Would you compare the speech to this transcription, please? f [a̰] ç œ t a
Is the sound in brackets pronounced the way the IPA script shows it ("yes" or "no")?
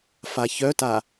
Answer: no